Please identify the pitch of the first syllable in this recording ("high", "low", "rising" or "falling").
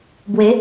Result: rising